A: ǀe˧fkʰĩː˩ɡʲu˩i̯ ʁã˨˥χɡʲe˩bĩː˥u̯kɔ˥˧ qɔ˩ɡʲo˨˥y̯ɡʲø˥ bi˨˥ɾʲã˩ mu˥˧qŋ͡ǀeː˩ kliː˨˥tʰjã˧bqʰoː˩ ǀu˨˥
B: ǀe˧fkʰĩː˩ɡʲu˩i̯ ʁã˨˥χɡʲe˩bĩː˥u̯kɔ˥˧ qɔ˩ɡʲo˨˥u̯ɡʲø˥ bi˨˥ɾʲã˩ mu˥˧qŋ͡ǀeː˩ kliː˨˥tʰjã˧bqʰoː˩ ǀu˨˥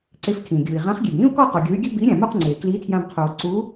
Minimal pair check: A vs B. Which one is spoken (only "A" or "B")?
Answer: A